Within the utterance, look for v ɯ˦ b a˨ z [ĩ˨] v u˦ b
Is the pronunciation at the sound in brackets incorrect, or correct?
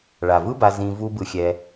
correct